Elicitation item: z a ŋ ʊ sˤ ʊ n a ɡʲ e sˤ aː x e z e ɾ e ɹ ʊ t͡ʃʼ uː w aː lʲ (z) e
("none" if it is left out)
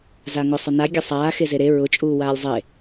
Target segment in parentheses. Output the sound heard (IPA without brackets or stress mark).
zˤ